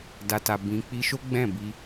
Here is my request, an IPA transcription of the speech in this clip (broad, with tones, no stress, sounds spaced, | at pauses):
d a˨ t a˨ b ĩ˧ k͡p i˧ ʃ o˦ ɡ͡b ɛ̃˦˨ b i˧